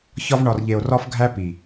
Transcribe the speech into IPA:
ç ɒ˧ v ɳ ɒ˨ r ʎ e˨ o̯ r ɒ˦ f ɡʱ æ˦ p i˨

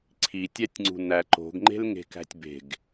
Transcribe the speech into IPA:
ǀʰ i tʲ æ tʲ ŋ͡ǀ ṳ n æ ǃ o̤ ɡ ŋ͡ǃ e̤ l ŋ e̤ k æ̤ tʲ b e̤ ɡ

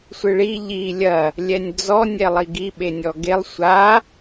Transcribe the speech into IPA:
sʷ ɨ ɭ i ʎ i lʲ ɐ | lʲ ɛ nʲ d͡z ɔ nʲ ɛ lˠ i ɡ i ɓ e nʲ ɔ ɡ e lˠ sʷ a

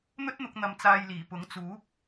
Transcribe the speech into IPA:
n̪ ɵ˥ t̚ n̪ ʊ˧ k̚ n̪ ɐ˧ m t͡s aː˧ j l iː˨˩ p ʊ˨˥ ŋ t͡s uː˨˥ p̚

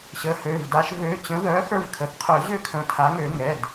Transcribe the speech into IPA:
ɕ ə˩˥ h ø˩˧˩ v d a˨˩˦ ʃ v ø˩˥ t͡ɕ ə̃˩˥ ð œ˩˥ x ə˞˦˨ v kʰ ə˩˧˩ θ qʰ œ˨˩˦ ʑ ø˦˨ kʰ ə̃˩˧˩ tʰ a˩˥ ŋ ø˨˩˦ ŋ ɛ˩˧˩ d

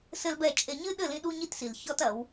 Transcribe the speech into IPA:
s ɘ˦ l b ɛ˦˨ t͡ʃʼ e˨ ɲ ɨ˦ ɗ ɘ˦˨ l ĩ˦ ɗ u˦ ɲ i˦ t s i˨ l ç ɔ˦ t ɐ˨˦ w

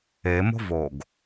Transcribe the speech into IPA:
e m o̤ v o ɡ

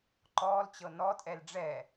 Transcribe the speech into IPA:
ǃ ɔː l t͡ɕ ɤ n ɔ tʼ ɛ l ɖ͡ʐ ɛ

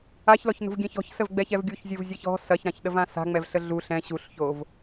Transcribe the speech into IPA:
a ç l ɔ ç n ṳ v ɡʲ ɛ̃ ç ɔ̤ ç s ə v ɡ͡b ɛ ç ɛ v ɡʲ u ç zʲ u v zʲ ɛ ç ɔ̤ s ɐ ç ɾ ã ç ɗ ə v ã s a̤ ŋ͡m ɛ v ɬ ə ɮ u ɬ ɛ̃ ɕ u ɬ ç o v

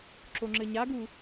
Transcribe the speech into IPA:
ǁ o ŋ͡ǁ ɘ ɲ a ɡ u

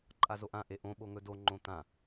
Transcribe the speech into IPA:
ǃʼ a z o ʔ ã ʔ e ʔ õ ɓ o ŋ ɵ d o ŋ͡ǃ õ t̪ ã

